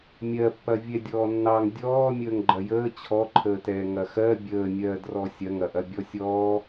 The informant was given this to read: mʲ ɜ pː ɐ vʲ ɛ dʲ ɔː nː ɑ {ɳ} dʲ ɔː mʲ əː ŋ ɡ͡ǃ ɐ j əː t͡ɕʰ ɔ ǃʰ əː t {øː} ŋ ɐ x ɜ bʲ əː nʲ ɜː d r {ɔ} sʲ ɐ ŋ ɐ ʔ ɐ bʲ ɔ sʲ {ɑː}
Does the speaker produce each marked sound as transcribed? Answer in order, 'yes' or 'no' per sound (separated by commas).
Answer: no, no, yes, no